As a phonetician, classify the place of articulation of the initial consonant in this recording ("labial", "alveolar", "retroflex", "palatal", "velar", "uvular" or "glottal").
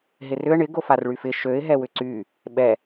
glottal